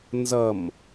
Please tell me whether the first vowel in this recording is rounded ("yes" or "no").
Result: no